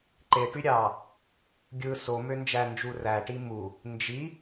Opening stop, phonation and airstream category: click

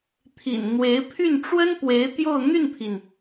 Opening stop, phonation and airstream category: aspirated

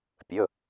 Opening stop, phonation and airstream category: plain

